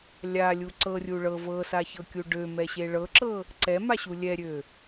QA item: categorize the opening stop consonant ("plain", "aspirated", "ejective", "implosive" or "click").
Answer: click